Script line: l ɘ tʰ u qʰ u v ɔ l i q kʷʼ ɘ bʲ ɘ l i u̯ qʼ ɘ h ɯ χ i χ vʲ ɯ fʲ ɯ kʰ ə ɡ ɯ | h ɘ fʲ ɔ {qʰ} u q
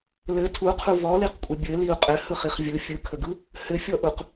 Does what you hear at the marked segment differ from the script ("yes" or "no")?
yes